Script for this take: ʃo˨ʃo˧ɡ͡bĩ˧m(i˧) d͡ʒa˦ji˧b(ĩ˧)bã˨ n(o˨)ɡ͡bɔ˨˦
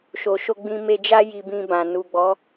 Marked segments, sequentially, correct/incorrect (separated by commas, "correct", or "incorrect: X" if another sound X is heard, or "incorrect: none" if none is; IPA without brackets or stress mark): incorrect: e˧, correct, incorrect: u˨